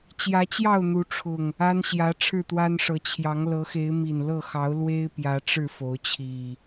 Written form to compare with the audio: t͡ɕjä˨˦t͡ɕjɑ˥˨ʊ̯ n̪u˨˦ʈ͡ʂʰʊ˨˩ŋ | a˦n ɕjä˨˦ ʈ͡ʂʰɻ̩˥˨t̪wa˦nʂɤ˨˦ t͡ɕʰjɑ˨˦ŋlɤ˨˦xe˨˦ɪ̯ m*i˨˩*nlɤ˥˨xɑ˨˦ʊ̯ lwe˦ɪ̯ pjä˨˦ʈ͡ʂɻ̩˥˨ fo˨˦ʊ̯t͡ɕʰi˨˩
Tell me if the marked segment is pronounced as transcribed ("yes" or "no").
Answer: yes